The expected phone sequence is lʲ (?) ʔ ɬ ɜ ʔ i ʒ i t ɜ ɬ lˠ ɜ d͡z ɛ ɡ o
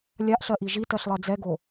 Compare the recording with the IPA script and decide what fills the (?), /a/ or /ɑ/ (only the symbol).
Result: a